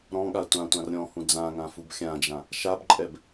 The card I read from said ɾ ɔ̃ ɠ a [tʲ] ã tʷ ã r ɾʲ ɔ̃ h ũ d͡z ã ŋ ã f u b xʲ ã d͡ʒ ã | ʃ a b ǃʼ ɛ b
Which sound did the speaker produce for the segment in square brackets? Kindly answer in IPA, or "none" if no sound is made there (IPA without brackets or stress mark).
tʷ